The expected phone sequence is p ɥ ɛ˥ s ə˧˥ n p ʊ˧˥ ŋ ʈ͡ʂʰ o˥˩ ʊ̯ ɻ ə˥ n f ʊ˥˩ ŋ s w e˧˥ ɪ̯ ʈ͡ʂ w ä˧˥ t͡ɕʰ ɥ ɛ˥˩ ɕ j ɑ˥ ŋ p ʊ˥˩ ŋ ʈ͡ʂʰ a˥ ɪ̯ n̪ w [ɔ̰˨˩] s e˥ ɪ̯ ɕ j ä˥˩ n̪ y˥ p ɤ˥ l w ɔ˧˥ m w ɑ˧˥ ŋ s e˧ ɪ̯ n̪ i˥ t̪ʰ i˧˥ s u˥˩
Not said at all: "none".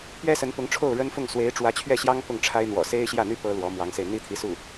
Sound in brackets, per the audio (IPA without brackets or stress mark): ɔ̰˨˩